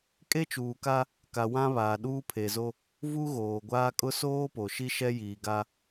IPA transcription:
kʼe˦t͡ʃuː˨ka˦ | ka˨ wã˦ βaː˨ɗuː˦pʰe˨zo˦ | vu˦ɣoː˨ɡʷaː˦ kʼʊ˦soː˦po˨ ʃi˦ʃɛ˦jiː˨ ɡa˦

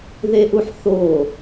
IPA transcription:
ðeʔuħ θo

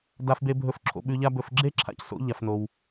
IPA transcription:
da˧fbe˧bʱɵ˧f ǁʰo̰˧ɓʉ˧ʎa˥bɵ˧f ɡ͡ǁe˥ǁʰa̰˧cso̰˧ ʎa˩fno˩w

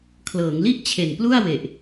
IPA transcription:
kʰlɤː˩˦ŋli˥˩ʔ t͡ɕʰe˨˩nplu˥˩a̯we˨˩ʔ

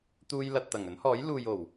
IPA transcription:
t̪uː˧j lɐ˨t̚t̪ɐ˨˩ŋ ɵ˨˥nhɔː˨˥j luː˨jo˨˩w

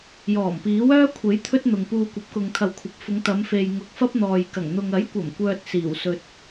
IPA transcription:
jɔː˨˩mpiː˨˥wœː˥ kʷʰe˨˥j t̪ʰɵ˥t̚n̪ʊ˨ŋpuː˧ kʷɐ˨˥p̚kʊ˨ŋt̪ʰɐ˨wkʷʰɐ˨p̚ fʊ˨˧ŋt̪ɐ˨˧mfe˨jŋʊ˨k̚ fɐ˥p̚n̪ɔː˨jkɐ˨˩ŋ n̪ʊ˨ŋɐ˨˥jkʷɐ˨˩m kʷœː˧t̚ siː˨˩w sɵ˨t̚

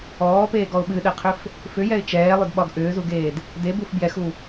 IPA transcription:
ɔːpeːɡɔʊ̯ ɓɨɗɛqʰʏf | fʏjɛɪ̯ t͡ʃɛːlˠʏdɓɒɡ ʔʏːzuɡeːd | debuf bjɛxu

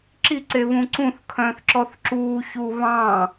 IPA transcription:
ǁiǀeβũ ǀũθ kʰœ̃ːθǁɔθǁuːçuː βɑ̃ː

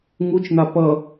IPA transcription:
ŋut͡ʃn̪a pʌ

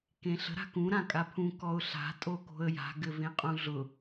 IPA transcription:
kẽɬə̤ ɾa̤kũ ɾãkʼapʰũ kɔʊ̯ɬa̤ tʼoko̤ə̯ja̤ ɡɘvẽqʼũɮʊ

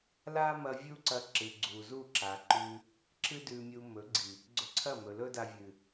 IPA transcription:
la˦mɐ˧ vʲu˦ǀɐ˧ ǁɨ˨ɡ͡ǀu˨zu˦˨ǁa˨ ǃʉ˧ | ǁɨ˦dʉ˧mʲu˧ mɵ˨˦ɡ͡ǀi˨ | ɡ͡ǀɵ˧ǀʰɐ˦˨mɵ˨ lɵ˦da˧vʲɨ˨

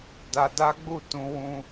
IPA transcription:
da˧da˦ɡ͡bu˦˨ tũ˧wũ˧

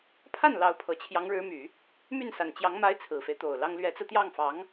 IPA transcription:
pʰa˥˩n lɑ˧˥ʊ̯ pʰɤ˨˩t͡ɕʰjɑ˧˥ŋɻɻ̩˧˥my˨˩˦ | my˥˩nsa˨˩nt͡ɕjɑ˧˥ŋ ma˧˥ɪ̯ t͡sʰɹ̩˨˩fe˦ɪ̯t̪o˨˩ʊ̯ lɑ˥ŋ lɥɛ˧˥t͡sɹ̩˧t̪jɑ˥˩ŋfɑ˧˥ŋ

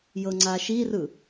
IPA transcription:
jɤŋ͡ǀaʃirɯ

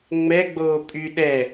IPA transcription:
ŋ͡mɛɡ͡boː pʼy ɗɛ

